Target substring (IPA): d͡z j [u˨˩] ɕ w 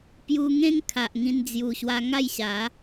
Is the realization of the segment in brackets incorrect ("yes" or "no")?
no